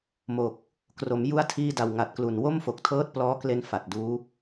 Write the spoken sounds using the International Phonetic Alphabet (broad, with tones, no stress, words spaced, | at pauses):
mo˨˩k̚ | kro˩˦m ju˧a̯ tʰiː˧da˨˩w ŋa˨˩t̚klu˨˩n wo˥˩mfo˨˩k̚tʰɤː˦˥t̚ plɔː˦˥kle˧n fa˨˩t̚duː˦˥